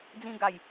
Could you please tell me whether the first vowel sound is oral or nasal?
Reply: nasal